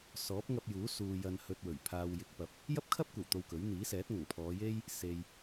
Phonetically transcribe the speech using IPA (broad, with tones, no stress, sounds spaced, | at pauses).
s ɔː˨˥ p̚ ŋ ɐ˧ p̚ j uː˨˥ s uː˨ j ɐ˧ n h ɵ˧ t̚ w ɵ˨˩ ɥ pʰ aː˨ w j ɪ˨ k̚ p ɐ˨ p̚ | j ɐ˥ p̚ kʰ ɐ˥ p̚ kʷ ɐ˨˩ w t̪ o˧ w k ɵ˨˥ ɥ n̪ iː˨˥ s ɛː˨˥ t̚ ŋ ɐ˨˩ ŋ pʰ ɔː˨˧ j e˥ j | s e˨ j